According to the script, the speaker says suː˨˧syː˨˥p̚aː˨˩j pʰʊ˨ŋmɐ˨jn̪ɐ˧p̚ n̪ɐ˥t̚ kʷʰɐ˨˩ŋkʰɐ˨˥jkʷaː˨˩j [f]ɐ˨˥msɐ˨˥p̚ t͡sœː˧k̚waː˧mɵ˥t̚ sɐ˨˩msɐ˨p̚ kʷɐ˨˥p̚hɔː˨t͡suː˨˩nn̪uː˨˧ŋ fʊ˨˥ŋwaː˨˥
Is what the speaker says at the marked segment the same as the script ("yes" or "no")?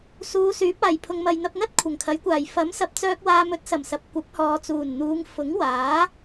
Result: yes